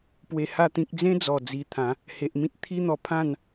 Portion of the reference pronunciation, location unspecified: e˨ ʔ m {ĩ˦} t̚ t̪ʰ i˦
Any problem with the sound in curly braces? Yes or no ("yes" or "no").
no